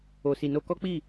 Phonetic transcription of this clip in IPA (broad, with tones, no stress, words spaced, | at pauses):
o˧si˧no˦ kɔ˦k͡pi˦˨